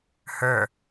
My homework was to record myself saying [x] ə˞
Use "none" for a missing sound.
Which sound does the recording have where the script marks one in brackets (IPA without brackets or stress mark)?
h